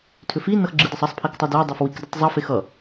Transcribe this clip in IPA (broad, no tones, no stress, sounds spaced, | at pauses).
tʰ ʏ f i n ʌ x ɡ͡ǁ ɨ d ʌ sˤ ʌ sˤ pʰ i k tˤ ʌ d e dˤ ʌ f w i k d ɨ tˤ zˤ ʌ f e x ʌ